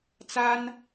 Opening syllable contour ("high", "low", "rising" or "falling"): high